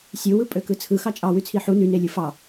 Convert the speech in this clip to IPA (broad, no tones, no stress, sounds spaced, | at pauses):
sʲ ɯ w ɯ pʼ ø k ɯ t͡sʰ ɯ x ɑ t͡ʃʼ ɑ w y t͡sʰ i ħ u n y n e lʲ ɯ f ɑ